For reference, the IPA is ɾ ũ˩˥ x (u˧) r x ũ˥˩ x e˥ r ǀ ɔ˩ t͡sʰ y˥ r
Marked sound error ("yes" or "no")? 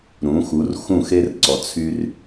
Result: yes